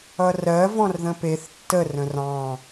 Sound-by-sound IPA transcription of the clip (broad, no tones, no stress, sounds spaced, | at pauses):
ʌ r ɜ v ɔ̃ r ð ə̃ p e θ tː ə r ə̃ r ɑ̃